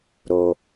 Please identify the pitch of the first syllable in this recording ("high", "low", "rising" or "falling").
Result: low